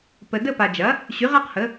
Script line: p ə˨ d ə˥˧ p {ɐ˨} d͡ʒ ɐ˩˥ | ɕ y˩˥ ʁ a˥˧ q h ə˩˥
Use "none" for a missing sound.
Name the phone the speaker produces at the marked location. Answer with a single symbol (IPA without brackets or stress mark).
a˨